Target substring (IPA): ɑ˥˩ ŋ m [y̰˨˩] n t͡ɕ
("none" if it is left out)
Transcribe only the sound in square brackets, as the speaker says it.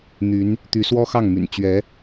y̰˨˩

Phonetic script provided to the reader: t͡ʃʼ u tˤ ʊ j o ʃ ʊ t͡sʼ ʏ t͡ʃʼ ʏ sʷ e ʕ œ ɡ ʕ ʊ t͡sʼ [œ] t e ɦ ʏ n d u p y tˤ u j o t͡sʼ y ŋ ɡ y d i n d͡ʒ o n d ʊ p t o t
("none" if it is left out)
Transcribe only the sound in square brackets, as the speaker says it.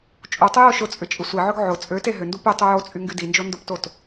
ø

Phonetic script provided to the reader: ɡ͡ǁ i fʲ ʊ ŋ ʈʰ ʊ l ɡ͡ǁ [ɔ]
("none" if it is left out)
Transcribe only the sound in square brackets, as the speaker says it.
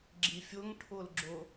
ʊ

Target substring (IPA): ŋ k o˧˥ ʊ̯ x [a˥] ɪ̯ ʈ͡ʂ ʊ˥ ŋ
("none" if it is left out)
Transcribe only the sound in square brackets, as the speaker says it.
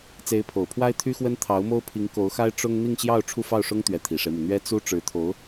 a˥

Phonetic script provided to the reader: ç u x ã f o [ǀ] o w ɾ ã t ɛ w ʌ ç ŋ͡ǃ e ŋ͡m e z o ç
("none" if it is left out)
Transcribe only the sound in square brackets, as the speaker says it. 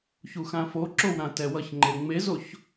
ǁ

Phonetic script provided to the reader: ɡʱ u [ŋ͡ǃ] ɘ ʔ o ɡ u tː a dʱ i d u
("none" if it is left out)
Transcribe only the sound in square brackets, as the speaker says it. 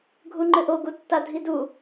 ŋ͡ǃ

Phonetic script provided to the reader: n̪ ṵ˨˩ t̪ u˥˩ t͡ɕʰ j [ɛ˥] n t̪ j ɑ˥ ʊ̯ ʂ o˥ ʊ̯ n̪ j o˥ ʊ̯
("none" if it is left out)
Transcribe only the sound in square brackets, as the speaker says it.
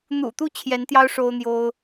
ɛ˧˥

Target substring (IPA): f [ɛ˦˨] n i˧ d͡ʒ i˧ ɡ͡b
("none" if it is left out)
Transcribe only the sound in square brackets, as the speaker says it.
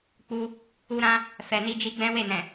ɛ˨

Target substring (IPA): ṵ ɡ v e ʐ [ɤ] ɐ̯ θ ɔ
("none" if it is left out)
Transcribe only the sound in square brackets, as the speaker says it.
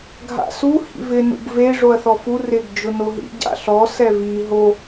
o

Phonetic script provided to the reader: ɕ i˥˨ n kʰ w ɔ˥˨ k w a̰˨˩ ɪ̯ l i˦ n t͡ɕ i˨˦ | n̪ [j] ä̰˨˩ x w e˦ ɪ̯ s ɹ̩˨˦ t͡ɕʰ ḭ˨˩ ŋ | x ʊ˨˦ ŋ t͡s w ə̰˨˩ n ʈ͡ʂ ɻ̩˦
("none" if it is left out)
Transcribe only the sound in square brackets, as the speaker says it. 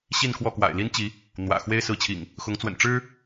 w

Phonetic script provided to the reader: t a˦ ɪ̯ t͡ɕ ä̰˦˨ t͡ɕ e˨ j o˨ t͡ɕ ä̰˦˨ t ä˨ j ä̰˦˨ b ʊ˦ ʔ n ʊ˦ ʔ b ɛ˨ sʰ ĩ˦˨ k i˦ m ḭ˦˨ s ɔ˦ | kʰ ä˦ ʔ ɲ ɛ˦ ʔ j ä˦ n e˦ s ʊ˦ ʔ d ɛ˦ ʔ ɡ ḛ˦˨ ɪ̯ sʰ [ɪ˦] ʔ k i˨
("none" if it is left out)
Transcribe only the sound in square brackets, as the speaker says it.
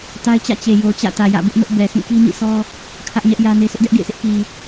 ɪ˦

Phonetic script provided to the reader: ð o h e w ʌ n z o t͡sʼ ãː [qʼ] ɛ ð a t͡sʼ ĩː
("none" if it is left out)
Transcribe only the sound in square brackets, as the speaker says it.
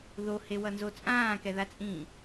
k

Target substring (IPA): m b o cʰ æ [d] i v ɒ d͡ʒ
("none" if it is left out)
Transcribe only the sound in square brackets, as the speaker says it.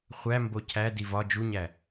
d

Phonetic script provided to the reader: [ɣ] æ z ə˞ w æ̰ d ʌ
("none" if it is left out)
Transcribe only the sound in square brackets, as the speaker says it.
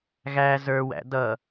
ɣ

